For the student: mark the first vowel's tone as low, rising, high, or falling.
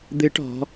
rising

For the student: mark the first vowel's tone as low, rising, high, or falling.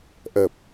low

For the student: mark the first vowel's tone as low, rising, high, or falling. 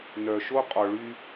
low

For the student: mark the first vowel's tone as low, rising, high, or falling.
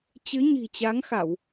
rising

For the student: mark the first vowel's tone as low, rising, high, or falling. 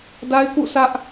high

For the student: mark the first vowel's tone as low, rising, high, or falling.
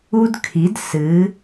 high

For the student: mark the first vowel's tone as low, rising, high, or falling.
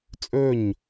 falling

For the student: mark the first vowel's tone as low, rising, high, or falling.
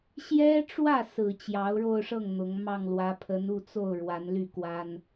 high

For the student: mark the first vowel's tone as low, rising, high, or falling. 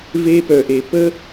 high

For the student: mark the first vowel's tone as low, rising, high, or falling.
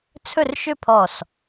falling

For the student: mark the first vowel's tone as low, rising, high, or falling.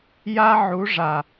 high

